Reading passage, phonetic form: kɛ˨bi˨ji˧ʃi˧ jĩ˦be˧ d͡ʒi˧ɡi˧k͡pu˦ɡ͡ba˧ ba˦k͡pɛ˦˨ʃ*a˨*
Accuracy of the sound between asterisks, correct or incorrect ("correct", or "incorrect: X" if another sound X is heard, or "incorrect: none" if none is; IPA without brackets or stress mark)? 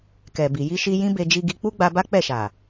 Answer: correct